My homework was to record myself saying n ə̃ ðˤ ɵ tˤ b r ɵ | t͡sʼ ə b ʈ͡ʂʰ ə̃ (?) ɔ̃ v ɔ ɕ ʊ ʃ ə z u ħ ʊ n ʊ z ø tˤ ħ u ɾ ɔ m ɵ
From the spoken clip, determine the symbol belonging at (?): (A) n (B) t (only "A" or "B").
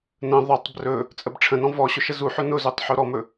A